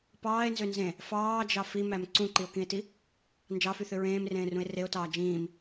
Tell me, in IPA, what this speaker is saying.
p ɑː e̯ n z ø n z ẽ | f ɑː d͡ʒ ɑ f i m æ m ǀ ũ ǃ i o̯ k ĩ e̯ t i | n d͡ʒ ɑ f y θ ø ɹ ẽː m r ẽː r ũ e̯ r e o̯ t ɑː d͡ʒ ĩː m

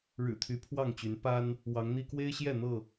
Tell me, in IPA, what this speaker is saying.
ɻ ɻ̩˨˩ t̪ʰ y˨˦ pʰ w ɑ˥˨ ŋ t͡ɕ y˨˦ n p a˦ n | w ɑ˨˦ ŋ n̪ i˦ k w e˦ ɪ̯ ɕ j ɛ˥˨ n̪ ɤ˥˨

